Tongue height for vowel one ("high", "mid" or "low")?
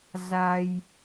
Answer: low